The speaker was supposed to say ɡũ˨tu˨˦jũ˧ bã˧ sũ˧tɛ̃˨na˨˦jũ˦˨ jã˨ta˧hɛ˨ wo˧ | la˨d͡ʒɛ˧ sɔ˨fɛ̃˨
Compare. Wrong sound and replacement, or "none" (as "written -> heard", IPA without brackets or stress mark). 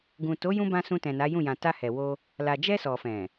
u˨˦ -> o˨˦